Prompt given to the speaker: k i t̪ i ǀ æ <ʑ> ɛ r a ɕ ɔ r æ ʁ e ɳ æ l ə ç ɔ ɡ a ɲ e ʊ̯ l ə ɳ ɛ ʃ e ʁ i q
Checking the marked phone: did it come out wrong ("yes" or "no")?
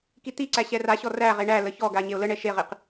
yes